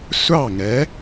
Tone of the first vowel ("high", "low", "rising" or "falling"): falling